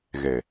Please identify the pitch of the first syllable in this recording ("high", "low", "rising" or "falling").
low